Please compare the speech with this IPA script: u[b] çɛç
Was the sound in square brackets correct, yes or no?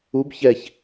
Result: yes